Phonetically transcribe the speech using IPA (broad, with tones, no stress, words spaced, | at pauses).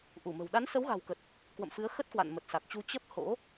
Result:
ʔu˧˩mə̤˨˩w ɗa˨˦nsə˨˦wɣa̤˨˩wkə˨˩t̚ | kwə̰˧˨mfɨ˨˦ə̯ xə˦˥t̚kwa̰˧˨n mə˨˩t̚sa˨˩k̚t͡ɕu˧ t͡ɕə˦˥p̚ ho̰˧˥